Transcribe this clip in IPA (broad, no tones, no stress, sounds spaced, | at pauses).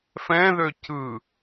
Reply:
f ɛ̃ ð ø c ɯ